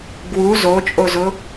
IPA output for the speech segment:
ɡ w u z o t͡ʃʼ o z ʊ

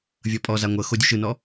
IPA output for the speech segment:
vʲ ɤ pʼ ɔ z a ŋʷ ɤ x o dʲ u ʃ ɯ n ɔ

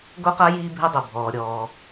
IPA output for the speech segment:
ɡ o˥ q a˥ j iː˥ bʱ e˥ dˤ o˩ bʱ ɔː˩ ɾʲ ɔː˩

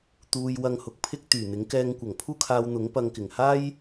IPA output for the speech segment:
t̪ uː˧ j w ɐ˧ ŋ h ʊ˨ k̚ pʰ ɪ˥ k̚ t̪ yː˨˩ n̪ ɪ˨˥ ŋ k ɛː˧ ŋ kʷ ɐ˨˩ ŋ pʰ uː˥ kʰ aː˧ w n̪ ʊ˨˥ ŋ p ɐ˧ ŋ k ɪ˨˩ ŋ h aː˥ j

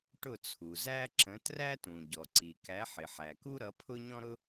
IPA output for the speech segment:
ʈ ʊ˥˩ t͡sʰ u˩ z æ˥ ǁ ə̃˨˥ t r æ˥ t ũ˩ ɟ ɔ˩ ǀ i˩ k æ˨˥ ħ ɪ˩ ħ æ˩ k u˥ ɾ ʌ˨˥ pʰ ʊ˥ ɲ ɔ̃˥ ɾ ʊ˥

